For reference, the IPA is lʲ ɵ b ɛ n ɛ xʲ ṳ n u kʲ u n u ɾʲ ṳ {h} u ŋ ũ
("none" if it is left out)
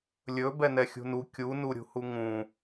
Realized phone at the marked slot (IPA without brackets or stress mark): h